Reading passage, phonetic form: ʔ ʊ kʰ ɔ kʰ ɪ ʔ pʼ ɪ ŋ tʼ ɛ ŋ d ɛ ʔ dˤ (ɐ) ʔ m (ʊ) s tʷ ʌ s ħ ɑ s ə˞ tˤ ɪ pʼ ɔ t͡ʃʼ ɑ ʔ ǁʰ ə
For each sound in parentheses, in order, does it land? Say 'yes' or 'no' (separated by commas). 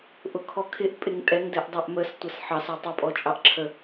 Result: no, no